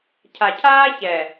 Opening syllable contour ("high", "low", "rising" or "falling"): low